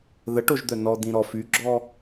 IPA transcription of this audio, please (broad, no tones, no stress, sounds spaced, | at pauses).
ð ə ʈ o ʒ d̪ œ n ɔ d̪ ĩ ɾ ɔ f y ɡ͡ǁ ɔ